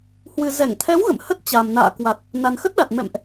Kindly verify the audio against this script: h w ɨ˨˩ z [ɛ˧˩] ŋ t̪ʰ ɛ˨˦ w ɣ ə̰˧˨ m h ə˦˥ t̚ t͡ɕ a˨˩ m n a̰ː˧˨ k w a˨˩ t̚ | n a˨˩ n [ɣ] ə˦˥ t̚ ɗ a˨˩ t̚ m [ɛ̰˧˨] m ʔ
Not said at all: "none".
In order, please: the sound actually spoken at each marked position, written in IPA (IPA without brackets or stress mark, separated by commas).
ɛ˧˩, x, ɛ̰˧˨